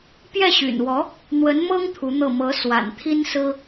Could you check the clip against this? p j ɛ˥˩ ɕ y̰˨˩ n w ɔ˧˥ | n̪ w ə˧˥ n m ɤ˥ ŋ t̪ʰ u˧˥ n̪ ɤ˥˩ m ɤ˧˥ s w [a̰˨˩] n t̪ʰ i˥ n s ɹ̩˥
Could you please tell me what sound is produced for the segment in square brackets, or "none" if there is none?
a̰˨˩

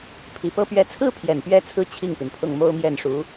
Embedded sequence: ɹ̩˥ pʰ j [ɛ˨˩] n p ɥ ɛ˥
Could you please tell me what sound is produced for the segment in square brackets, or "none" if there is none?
ɛ˨˩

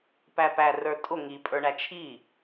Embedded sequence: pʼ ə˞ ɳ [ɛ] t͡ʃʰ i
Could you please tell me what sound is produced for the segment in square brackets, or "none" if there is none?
æ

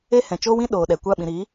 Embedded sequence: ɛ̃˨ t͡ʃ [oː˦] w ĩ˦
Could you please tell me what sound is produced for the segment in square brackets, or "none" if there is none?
oː˦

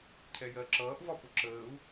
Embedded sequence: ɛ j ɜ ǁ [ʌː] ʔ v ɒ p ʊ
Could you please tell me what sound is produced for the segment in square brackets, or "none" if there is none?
ʌː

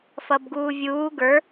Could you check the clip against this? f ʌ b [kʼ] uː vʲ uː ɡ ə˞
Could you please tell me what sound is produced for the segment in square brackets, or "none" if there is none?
ɡ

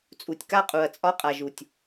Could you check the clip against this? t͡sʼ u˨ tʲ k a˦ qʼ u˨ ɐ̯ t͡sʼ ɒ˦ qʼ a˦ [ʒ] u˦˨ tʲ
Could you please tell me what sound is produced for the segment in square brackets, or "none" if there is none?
ʒ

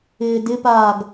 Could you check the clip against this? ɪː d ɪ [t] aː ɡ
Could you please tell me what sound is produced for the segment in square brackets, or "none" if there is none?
p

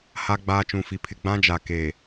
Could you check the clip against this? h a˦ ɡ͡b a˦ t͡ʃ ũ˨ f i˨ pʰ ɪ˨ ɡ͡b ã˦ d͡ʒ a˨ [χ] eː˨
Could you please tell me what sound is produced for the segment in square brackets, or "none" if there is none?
k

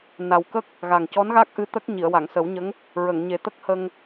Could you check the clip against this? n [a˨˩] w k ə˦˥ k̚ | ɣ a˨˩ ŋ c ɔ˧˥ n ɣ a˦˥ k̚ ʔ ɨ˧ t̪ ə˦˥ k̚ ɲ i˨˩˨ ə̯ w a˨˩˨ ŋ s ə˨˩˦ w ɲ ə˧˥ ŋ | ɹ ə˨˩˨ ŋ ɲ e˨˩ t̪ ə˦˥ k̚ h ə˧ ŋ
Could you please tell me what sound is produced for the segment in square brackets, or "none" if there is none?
a˨˩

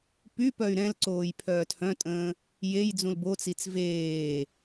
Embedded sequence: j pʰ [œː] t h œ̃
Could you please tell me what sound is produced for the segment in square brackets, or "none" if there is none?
œː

